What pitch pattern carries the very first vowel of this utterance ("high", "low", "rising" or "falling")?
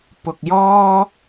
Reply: low